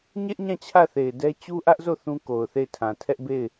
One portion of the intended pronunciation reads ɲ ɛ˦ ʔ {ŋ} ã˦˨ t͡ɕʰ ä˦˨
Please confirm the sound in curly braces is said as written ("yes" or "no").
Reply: no